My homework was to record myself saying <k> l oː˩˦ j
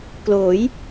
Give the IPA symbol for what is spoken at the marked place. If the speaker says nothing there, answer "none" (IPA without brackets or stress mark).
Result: k